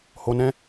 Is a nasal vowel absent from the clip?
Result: no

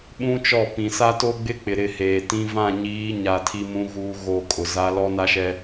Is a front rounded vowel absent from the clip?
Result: yes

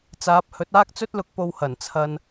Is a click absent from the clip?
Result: yes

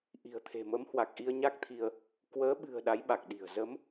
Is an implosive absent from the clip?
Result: no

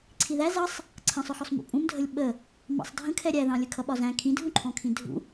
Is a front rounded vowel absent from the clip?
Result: yes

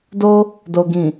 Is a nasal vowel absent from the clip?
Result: no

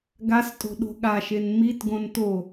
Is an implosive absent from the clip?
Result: no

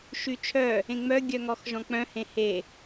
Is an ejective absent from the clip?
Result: yes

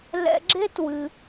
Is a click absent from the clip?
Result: no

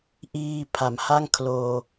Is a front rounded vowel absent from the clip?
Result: yes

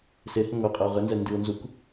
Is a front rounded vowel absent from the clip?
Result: yes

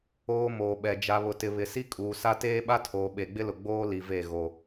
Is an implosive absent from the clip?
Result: no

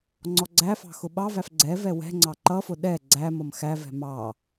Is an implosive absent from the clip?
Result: no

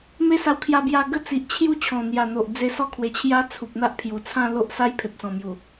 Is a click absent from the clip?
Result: yes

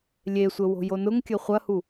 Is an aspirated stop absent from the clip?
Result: yes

